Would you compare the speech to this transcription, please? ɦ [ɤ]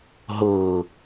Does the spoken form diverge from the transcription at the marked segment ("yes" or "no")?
no